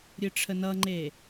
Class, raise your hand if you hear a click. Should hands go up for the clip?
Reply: yes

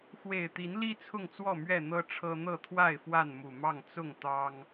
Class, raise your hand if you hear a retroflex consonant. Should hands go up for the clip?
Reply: yes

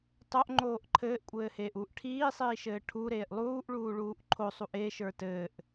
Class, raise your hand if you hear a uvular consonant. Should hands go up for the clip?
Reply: no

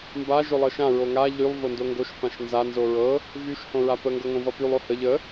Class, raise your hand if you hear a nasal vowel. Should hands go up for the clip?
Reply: yes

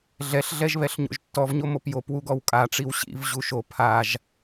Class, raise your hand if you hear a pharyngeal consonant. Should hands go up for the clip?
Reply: no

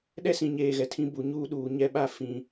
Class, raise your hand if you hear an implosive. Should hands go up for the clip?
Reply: yes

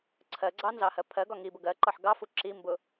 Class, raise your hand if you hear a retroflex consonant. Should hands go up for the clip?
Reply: no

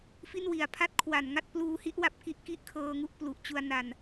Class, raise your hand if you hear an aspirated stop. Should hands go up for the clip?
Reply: yes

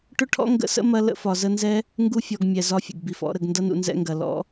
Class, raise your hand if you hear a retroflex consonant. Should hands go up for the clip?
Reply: yes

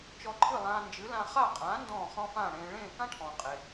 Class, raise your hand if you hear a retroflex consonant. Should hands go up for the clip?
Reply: yes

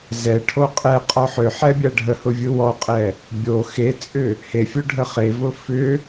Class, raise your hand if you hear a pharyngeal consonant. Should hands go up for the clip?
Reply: yes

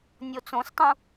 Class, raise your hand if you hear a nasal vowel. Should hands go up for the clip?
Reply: yes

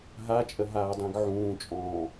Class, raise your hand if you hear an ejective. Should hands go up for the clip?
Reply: yes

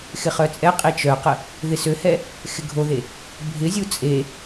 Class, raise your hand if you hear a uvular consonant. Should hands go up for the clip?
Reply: yes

